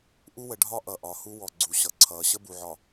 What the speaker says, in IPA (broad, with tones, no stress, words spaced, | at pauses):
ʔu˦wə˨˦ɖʱɒ˦ ʔʌ˨ʔɒ˨hu˦ wɔ˨ ɡ͡ǀu˨ɕʌ˨ ǀʰʌː˨ɕə˦bu˨ʕɒ˨